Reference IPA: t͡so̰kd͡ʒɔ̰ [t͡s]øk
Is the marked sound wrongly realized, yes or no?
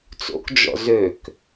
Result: yes